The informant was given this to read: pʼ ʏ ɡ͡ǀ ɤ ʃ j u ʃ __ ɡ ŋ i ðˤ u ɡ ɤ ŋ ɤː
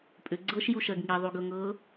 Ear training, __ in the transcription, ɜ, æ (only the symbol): ɜ